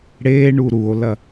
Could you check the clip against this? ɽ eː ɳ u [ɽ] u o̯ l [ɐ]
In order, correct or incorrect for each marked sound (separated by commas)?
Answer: incorrect, correct